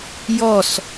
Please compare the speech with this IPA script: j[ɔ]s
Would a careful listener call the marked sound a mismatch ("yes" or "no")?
no